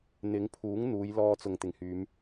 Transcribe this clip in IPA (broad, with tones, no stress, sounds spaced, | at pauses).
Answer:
n̪ ɪ˨˥ ŋ pʰ uː˨˥ ŋ n̪ uː˨˧ j l ɔː˧ t͡s ʊ˨ ŋ t̪ ɪ˨˩ ŋ h yː˨˧ m